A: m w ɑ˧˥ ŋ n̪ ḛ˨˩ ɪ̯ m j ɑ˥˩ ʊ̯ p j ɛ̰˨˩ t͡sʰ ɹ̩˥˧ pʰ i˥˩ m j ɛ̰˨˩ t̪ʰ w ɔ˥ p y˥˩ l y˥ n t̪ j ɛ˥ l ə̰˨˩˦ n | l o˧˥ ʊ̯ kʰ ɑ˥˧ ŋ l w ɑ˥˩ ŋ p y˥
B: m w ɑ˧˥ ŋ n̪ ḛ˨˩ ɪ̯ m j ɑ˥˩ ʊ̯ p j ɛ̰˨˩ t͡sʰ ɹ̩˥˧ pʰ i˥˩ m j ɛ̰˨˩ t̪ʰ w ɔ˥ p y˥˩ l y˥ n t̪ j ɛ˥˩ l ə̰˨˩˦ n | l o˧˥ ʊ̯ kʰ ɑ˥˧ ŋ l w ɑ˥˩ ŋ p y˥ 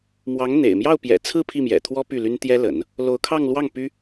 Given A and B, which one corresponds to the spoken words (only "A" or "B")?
A